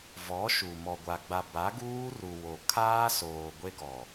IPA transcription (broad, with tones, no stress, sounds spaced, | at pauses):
v ɔ˨˦ ʃ u˨ m ɔ˨ ɡʷ a˨ ɡ͡b a˨ b a˨˦ ɡ uː˦ r u˨ w o˨ kʰ aː˦ s oː˨ ɡʷ e˦ ɡ ɔ˨